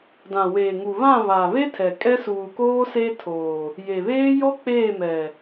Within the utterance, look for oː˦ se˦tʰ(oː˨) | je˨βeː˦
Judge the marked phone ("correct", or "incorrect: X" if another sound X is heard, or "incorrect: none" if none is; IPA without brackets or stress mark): correct